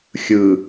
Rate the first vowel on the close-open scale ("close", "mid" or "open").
close